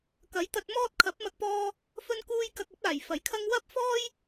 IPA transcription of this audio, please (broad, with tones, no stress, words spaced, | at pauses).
kɐ˨˥jt̪ɐ˧t̚mɔː˥t̚ kʰɐ˨˥p̚mɐ˧k̚pɔː˧ | fɵ˧nkuː˧j kɐ˧k̚ɐ˨˥p̚aː˨˩j fɐ˨˩jkʰɐ˥ŋ wɐ˥p̚fɔː˥j